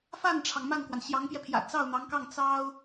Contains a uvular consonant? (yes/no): no